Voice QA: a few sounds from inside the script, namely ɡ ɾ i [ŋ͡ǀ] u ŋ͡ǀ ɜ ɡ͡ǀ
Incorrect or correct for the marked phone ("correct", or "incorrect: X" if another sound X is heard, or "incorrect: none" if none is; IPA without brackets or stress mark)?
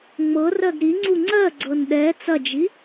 correct